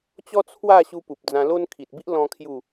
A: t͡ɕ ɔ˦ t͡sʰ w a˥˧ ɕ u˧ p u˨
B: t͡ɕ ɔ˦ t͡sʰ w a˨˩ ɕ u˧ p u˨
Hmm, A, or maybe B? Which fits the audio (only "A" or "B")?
A